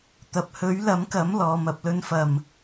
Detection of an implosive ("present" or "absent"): absent